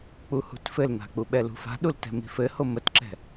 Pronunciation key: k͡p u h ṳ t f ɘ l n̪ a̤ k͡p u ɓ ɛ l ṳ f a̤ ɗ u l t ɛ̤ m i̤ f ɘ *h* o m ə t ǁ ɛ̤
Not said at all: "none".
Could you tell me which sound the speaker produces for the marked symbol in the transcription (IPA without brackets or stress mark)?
h